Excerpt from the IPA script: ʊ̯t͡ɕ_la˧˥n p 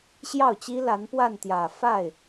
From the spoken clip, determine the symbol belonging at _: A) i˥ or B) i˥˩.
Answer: A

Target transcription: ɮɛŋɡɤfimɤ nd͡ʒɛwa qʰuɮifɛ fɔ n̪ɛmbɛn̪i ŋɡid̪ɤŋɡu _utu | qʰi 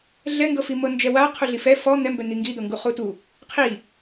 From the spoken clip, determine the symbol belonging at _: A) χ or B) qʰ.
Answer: A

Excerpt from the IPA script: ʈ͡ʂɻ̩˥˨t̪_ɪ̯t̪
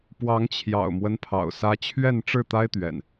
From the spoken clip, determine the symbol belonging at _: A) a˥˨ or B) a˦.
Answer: B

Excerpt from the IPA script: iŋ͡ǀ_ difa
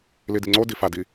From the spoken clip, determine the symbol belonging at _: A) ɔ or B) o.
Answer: B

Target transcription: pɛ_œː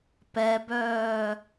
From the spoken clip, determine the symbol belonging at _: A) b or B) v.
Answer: A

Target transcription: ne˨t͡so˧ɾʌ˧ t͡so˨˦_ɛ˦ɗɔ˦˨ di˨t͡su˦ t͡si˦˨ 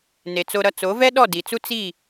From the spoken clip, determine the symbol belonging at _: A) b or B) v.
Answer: B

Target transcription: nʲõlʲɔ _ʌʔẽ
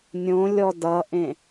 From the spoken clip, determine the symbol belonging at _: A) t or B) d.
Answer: B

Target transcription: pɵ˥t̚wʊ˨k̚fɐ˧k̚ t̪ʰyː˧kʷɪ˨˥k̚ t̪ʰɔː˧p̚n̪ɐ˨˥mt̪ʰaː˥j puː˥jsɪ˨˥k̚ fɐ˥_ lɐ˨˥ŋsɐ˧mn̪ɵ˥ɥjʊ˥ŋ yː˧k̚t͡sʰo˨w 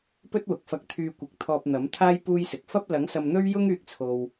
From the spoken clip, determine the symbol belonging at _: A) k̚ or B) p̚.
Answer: B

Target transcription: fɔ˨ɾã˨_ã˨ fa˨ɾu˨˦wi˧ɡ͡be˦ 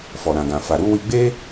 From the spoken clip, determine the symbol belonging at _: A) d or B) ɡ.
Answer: B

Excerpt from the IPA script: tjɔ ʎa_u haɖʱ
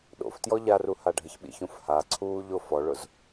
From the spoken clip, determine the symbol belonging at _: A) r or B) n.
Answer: A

